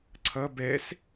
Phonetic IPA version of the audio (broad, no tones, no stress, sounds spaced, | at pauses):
ǀʰ ʌ b ɛ s